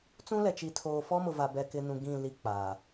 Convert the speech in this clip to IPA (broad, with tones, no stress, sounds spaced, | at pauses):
t͡s ũ˦ l ɛ˨ t͡ʃ i˨ tʰ oː˨ f ɔ˦ m ʊ˨ v a˨ b ɛ˨ k ɪ˨ n ũ˨ ɡ ĩ˦˨ l i˦ k͡p aː˨